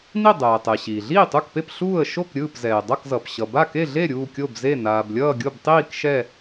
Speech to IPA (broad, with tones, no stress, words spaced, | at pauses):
ni˥˨ dˤɛː˩tˤɛ˩ ɕiː˩ɮiː˥˨tˤu˥˨kpe˥˨p ɬuː˥˨ə̯ ʃo˥˨kɾʲɯː˥˨p zɛː˩dˤʌ˥˨kzʌ˩p ɕʌ˩ba˥˨ke˥˨ɮe˥˨ ɾʲuː˥˨kʲo˥˨bze˥˨ naː˩blʲʌː˥˨ɡʲo˥˨btˤiː˥˨k ʃɛ˥˨